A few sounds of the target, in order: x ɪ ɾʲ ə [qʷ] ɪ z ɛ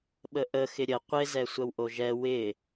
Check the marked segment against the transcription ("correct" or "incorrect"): correct